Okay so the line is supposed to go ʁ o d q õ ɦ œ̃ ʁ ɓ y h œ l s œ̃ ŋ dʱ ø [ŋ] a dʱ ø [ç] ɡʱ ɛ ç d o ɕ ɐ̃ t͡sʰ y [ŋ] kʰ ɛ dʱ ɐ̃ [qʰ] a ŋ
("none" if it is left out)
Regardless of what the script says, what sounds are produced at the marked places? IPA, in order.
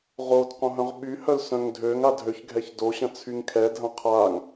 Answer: ŋ, ç, ŋ, qʰ

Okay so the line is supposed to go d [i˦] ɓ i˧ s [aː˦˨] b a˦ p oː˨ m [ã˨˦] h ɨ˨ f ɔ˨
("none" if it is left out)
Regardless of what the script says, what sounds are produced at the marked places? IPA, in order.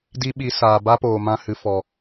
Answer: i˦, aː˨, ã˧

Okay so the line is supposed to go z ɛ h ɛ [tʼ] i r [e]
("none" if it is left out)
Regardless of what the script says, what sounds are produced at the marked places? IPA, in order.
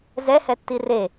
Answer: tː, e

